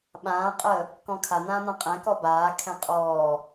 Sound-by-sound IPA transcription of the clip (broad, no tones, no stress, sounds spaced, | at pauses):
ɓ ãː qʼ əː | k ɔ̃ kʰ a n̪ ãː n̪ ã qʼ ɛ̃ k ɔ b aː kʰ ɛ̃ qʼ ɔː